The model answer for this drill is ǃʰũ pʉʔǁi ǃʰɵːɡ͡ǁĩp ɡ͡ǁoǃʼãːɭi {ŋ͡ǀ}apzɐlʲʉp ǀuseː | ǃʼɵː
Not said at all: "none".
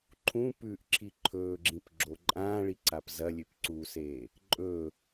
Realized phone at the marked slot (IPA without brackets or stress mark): ǀ